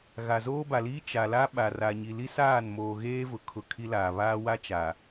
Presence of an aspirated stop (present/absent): present